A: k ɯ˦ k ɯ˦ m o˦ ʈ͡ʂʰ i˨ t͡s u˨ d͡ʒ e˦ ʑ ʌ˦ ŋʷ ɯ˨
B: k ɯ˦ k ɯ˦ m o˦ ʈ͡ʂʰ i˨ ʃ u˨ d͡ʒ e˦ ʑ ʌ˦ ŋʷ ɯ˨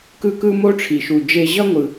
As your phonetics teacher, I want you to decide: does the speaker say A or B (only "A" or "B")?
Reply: B